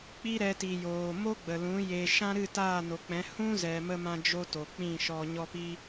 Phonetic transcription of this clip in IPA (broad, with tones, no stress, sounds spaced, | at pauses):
k͡p i˦ ɾ ɛ˧ t i˨ j oː˨ m o˦ ɡ͡b ə˨ l ũ˨˦ j e˨ ʃ ã˦ ɾ ɨ˦˨ t aː˦˨ n o˨ k͡p ɛ̃˨˦ h ũ˦ z ɛ˨ m ə˧ m ã˦ d͡ʒ o˦ t o˨ k͡p ĩ˦˨ ʃ ɔ˧ ɲ ɔ˦ p i˦